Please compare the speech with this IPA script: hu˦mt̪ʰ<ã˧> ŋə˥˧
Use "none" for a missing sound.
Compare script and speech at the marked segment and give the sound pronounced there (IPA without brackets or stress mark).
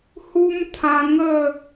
ã˧